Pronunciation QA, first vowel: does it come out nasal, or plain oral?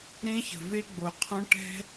nasal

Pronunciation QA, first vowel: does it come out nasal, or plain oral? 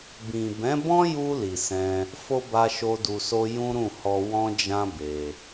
nasal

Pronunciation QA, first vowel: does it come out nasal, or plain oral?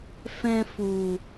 nasal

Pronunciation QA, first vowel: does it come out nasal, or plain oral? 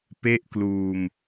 oral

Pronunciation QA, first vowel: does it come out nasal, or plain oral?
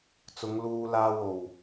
oral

